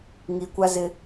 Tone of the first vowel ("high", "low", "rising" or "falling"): low